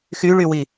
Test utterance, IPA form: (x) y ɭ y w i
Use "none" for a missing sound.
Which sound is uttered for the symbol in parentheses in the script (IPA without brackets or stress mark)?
x